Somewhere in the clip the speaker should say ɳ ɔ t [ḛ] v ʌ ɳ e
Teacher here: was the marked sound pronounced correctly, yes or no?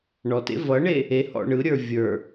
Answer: yes